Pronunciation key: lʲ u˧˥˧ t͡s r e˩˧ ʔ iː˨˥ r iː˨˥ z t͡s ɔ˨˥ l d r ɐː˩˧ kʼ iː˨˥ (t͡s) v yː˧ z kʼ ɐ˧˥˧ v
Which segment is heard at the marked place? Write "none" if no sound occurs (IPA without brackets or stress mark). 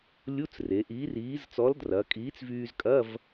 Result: t͡s